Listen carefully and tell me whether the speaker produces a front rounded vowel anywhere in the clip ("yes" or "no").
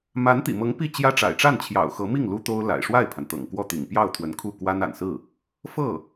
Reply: no